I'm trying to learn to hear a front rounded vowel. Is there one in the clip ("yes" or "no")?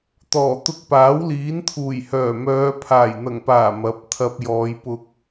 yes